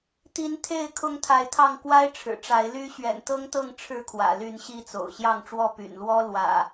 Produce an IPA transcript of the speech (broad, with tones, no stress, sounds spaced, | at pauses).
t̪ i˨˦ n t̪ʰ e˥˨ ɪ̯ kʰ ʊ˦ ŋ t̪ʰ a˨˦ ɪ̯ t̪ʰ ɑ˥˨ ŋ k w a˦ ɪ̯ ʈ͡ʂʰ ɻ̩˨˩ ʈ͡ʂ a˨˦ ɪ̯ l y˦ ɕ ɥ ɛ̰˨˩ n t̪ ɤ˦ ŋ t̪ ɤ˥˨ ŋ ʈ͡ʂʰ ɻ̩˥˨ kʰ w ä̰˨˩ l y˥˨ n ɕ i˥˨ t͡s o̰˨˩ ʊ̯ ɕ j ɑ˥˨ ŋ ʈ͡ʂ w ɔ˥˨ p y̰˨˩ n l w ɔ˦ l w ä̰˨˩